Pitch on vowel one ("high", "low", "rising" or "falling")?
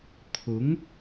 rising